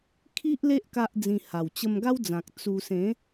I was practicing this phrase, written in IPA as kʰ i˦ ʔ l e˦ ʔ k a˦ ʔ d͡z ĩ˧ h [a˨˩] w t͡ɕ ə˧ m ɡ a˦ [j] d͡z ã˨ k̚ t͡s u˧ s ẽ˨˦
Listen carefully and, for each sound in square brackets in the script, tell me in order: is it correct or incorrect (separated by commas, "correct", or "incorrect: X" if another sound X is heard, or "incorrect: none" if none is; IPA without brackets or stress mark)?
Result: correct, incorrect: w